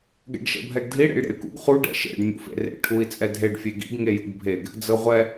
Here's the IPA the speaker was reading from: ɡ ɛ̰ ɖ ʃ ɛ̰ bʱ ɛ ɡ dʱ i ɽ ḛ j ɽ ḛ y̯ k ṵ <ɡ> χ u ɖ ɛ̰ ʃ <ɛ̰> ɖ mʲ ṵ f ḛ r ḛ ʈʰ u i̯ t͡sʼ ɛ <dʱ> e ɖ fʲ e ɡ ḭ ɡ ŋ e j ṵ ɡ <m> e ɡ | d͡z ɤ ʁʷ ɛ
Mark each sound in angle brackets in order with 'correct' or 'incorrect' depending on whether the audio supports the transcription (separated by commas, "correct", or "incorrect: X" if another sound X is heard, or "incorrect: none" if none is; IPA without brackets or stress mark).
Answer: correct, incorrect: ḛ, correct, incorrect: bʱ